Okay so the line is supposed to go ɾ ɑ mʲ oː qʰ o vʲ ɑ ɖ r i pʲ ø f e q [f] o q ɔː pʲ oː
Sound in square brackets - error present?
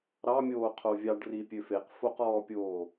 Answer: no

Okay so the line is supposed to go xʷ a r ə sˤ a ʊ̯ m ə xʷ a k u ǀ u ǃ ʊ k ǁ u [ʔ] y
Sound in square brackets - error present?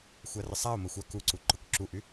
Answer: no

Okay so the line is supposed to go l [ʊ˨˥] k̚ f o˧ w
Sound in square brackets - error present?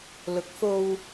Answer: no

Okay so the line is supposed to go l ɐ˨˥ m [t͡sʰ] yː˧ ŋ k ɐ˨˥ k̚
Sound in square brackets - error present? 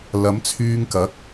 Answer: no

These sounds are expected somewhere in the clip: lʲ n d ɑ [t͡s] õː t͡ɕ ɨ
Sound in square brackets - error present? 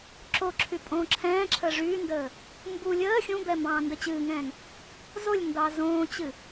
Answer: yes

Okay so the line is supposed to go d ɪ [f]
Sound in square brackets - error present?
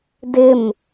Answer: yes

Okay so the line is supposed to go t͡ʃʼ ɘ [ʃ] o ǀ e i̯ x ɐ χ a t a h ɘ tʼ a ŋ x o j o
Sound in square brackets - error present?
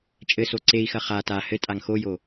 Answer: yes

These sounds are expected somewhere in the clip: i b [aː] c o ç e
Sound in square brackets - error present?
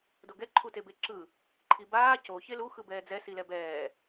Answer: no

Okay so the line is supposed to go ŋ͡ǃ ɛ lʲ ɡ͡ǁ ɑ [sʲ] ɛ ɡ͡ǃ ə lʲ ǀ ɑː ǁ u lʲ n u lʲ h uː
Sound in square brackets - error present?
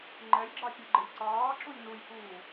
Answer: no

